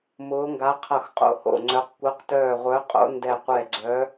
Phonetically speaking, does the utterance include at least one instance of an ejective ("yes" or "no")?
yes